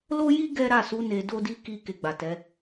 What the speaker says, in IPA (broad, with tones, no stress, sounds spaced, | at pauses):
l o˦ j i˦ ɡ ɛ˦ ɾ a˦˨ s u˨˦ n e˧ d o˦ d i˦ k i˦˨ k e˧ ɡ͡b a˨ t ɛ˨˦